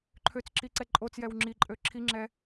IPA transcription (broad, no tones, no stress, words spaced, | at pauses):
ǃʰøt͡sǁi ǀɛǃʼot͡sjɛw ŋ͡ǁiǃʼø ǁʰiŋ͡ǁɛ